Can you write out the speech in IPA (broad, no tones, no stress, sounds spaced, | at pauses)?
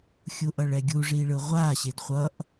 xʲ u ʔ ʌ ɭ ɛ ɡʲ u ʐ i ɭ ɯ ʁʷ a ɕ e d χʷ ʌ ʔ